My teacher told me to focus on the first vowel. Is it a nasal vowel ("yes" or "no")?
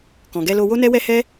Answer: yes